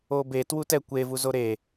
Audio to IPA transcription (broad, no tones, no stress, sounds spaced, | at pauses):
o b e t w u t ɛ kʷ e v u z o ɾ e